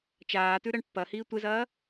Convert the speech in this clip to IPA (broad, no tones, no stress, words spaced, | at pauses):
t͡ʃaːtʉ ɾɐɳpːɐhiː tʷezɐː